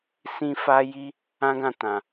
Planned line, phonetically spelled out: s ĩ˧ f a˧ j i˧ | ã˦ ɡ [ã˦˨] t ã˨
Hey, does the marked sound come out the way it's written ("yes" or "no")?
yes